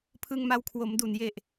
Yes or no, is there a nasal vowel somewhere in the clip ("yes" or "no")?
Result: no